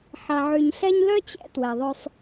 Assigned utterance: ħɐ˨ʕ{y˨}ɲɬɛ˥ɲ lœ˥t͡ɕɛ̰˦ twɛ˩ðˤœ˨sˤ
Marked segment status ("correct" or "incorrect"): correct